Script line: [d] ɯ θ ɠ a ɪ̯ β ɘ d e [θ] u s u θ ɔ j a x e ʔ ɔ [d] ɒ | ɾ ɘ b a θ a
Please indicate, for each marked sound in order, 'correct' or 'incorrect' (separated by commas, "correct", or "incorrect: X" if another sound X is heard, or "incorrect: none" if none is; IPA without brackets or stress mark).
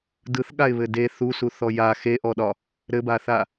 correct, correct, incorrect: ɗ